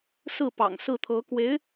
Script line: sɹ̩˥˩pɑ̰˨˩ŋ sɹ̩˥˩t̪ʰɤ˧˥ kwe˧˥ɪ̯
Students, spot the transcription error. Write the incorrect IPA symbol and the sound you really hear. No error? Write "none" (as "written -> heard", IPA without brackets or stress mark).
none